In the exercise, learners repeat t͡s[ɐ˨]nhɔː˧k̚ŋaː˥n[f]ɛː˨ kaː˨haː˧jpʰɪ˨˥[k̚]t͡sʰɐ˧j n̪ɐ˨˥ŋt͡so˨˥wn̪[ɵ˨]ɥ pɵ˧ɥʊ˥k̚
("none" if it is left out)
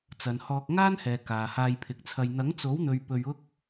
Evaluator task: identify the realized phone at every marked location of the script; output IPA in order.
ɐ˨, h, k̚, ɵ˨

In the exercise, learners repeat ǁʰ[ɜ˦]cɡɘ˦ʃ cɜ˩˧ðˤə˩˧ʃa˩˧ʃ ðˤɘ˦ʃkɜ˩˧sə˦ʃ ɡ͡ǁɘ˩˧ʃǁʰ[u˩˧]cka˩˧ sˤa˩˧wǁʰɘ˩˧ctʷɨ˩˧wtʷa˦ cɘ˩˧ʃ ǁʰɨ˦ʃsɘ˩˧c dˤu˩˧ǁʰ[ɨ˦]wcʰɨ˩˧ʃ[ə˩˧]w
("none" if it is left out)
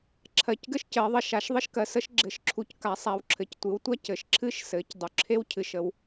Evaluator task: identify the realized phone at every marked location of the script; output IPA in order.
ɜ˩˧, u˩˧, e˦, ə˩˧

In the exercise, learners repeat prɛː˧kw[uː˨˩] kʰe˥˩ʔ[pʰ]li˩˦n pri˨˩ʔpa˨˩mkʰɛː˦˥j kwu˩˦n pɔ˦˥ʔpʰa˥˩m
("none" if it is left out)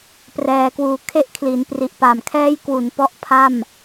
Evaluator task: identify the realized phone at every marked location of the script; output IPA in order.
uː˧, kʰ

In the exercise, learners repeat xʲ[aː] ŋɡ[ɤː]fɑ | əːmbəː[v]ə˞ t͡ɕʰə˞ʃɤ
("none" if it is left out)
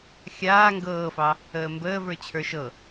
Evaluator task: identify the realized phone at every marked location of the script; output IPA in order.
aː, ɤː, v

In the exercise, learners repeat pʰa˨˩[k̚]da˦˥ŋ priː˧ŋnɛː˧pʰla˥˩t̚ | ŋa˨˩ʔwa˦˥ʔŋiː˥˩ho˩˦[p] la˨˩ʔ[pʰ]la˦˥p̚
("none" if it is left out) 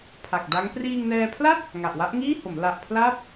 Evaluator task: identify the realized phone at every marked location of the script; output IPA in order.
k̚, m, pʰ

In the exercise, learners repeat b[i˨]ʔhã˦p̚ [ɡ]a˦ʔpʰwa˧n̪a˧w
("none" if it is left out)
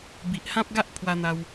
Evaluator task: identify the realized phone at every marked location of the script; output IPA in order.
i˨, ɡ

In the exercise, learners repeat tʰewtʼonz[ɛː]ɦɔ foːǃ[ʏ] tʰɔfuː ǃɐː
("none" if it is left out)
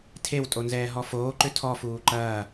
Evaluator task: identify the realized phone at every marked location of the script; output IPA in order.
ɛː, ʏ

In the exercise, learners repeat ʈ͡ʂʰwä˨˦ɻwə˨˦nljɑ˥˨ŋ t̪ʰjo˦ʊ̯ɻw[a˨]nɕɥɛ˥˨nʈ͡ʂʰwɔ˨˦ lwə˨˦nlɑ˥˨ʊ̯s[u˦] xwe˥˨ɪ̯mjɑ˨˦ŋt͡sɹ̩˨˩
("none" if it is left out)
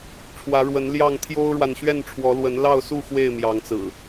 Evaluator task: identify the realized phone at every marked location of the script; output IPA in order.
a˨, u˥˨

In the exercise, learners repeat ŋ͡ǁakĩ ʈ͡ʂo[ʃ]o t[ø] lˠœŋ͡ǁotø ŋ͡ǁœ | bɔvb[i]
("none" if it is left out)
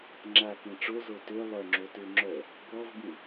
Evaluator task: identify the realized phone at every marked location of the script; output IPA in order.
z, ø, ĩ

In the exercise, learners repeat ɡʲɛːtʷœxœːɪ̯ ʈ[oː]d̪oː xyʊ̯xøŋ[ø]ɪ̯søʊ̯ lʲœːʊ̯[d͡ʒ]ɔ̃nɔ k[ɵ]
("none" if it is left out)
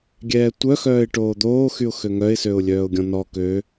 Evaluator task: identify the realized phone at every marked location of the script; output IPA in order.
oː, œ, ɡʲ, ø

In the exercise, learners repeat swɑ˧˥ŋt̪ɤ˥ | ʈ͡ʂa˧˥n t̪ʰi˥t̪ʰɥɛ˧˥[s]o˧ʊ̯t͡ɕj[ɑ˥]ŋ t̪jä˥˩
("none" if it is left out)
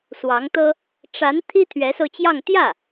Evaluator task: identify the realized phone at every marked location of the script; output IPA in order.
s, ɑ˥˧

